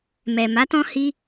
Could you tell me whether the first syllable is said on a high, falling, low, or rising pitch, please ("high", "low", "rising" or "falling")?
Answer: low